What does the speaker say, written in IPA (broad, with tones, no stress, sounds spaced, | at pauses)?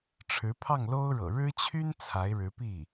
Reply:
ʈ͡ʂʰ ɻ̩˧˥ pʰ ɑ˥˩ ŋ l o˥ ʊ̯ ɻ ɤ̰˨˩ ɻ ɻ̩˥ t͡ɕʰ y˥ n t͡sʰ a˧˥ ɪ̯ ɻ ɻ̩˧˥ p i˥˩